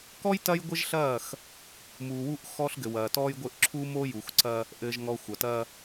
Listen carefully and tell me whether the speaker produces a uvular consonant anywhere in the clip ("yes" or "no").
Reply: no